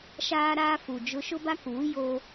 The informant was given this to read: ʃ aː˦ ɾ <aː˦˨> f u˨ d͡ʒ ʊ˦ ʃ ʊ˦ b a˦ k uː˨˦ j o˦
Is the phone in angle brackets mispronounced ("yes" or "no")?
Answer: yes